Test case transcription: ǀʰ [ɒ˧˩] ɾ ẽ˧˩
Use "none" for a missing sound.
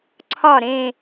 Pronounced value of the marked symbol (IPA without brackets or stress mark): ɒ˧˩